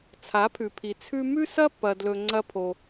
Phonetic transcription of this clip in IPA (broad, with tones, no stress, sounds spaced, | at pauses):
t͡sʰ a˨˦ pʰ ʉ˨ pʰ i˨ t͡sʰ ʉ˦ m ʉ˦ s ɐ˦ pː ɐ˧ d l ɵ˧ ŋ͡ǀ ɐ˦ pʰ o˧